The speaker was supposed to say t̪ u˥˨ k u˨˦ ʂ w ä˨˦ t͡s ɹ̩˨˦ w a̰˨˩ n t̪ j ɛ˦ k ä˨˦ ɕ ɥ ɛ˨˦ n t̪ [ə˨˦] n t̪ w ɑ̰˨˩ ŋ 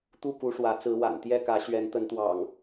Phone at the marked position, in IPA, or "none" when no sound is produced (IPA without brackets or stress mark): ə˨˦